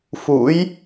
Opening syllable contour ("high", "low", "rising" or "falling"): rising